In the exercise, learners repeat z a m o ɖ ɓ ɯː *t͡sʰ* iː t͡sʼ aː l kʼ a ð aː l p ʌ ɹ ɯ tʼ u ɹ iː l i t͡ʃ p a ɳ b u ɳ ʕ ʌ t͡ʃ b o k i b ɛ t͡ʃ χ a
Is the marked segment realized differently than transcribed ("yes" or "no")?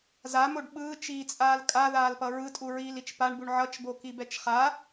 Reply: yes